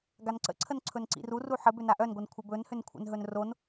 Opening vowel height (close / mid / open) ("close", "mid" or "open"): open